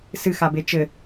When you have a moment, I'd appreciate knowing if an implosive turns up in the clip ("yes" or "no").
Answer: no